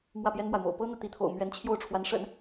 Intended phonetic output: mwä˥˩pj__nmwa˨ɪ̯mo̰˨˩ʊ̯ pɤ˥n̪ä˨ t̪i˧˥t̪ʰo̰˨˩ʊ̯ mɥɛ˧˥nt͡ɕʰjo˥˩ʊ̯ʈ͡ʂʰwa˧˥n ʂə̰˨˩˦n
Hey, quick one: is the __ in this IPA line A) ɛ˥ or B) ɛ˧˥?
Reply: A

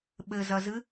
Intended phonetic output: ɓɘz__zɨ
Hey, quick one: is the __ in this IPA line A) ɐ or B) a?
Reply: A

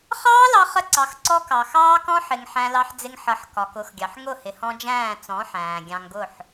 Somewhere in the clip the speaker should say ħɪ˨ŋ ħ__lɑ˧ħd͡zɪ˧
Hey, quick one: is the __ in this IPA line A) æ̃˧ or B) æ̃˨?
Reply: A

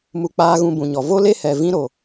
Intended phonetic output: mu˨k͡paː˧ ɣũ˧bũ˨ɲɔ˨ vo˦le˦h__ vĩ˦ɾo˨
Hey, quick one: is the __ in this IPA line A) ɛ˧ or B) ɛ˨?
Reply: B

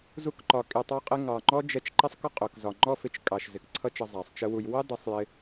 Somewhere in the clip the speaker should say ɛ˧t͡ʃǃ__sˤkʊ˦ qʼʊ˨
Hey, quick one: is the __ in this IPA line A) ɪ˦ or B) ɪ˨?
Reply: A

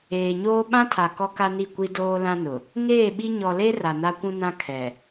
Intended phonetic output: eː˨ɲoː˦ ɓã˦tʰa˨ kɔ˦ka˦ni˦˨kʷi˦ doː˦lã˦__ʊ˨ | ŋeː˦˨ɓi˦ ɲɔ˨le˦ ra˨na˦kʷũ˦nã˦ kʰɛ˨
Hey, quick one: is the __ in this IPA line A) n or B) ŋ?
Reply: A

